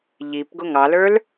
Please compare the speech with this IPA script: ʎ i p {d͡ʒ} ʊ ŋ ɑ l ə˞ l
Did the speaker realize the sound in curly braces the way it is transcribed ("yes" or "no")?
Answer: no